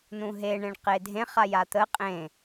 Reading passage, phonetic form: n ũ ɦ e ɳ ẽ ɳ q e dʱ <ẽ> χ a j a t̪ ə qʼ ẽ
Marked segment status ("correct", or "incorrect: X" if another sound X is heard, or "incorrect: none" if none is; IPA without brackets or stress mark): correct